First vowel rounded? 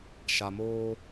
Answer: no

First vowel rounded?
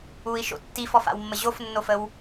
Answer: yes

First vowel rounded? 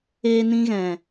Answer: no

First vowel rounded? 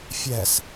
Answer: no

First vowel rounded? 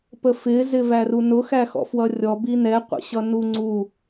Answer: no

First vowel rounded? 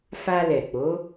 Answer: no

